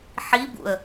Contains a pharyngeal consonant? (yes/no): yes